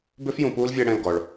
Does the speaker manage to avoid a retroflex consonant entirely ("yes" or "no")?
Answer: no